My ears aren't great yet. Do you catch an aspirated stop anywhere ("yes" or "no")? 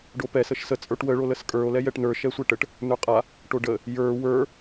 no